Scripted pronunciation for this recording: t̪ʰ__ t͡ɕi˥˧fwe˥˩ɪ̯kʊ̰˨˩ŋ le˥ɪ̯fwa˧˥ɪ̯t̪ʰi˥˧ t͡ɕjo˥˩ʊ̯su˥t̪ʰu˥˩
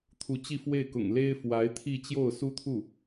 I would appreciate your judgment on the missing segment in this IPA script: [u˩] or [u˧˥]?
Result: u˧˥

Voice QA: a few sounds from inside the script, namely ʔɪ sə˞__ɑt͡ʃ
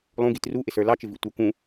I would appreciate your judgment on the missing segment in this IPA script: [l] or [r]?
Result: l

